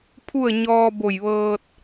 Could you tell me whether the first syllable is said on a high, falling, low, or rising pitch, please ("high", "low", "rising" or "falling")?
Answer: falling